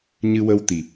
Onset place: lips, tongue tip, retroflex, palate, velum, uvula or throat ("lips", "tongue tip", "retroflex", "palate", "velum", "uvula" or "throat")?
palate